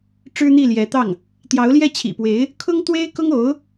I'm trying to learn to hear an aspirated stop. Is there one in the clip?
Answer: yes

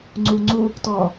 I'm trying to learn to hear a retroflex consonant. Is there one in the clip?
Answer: no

